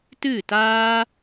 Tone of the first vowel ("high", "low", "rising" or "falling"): falling